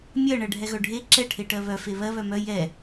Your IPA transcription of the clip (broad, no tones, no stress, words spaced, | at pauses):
mʲɜ ɳɜɖʱɛɣœɖʱe ǁɛ ʈʰeʈɜβœ feβɜ βœmœ jɛ